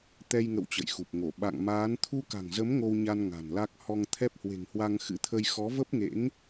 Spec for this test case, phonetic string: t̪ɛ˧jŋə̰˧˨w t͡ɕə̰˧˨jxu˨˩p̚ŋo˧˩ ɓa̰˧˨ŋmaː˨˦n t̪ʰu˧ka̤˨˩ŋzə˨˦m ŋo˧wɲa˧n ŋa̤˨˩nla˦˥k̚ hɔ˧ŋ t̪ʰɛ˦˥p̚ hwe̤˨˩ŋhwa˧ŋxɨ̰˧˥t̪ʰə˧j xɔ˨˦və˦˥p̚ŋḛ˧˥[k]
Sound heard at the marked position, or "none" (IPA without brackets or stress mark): ŋ